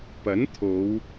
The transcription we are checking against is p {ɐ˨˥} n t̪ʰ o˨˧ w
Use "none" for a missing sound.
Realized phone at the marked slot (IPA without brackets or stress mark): ɐ˨˥